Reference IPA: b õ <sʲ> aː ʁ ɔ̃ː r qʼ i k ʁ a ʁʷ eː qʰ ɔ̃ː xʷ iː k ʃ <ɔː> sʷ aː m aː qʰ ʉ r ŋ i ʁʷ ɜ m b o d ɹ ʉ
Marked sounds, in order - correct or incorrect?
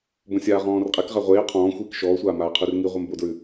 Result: correct, correct

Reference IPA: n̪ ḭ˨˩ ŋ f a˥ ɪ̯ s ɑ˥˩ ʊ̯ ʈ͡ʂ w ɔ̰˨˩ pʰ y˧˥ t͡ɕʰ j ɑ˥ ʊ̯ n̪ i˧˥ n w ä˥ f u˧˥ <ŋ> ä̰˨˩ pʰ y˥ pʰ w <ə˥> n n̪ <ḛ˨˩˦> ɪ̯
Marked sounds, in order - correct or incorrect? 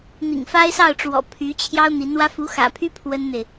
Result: incorrect, correct, incorrect

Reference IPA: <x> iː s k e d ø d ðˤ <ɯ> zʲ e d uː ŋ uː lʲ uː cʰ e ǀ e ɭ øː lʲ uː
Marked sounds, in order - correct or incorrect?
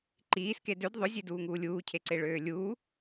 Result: incorrect, incorrect

